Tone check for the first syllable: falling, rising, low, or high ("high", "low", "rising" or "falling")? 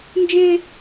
high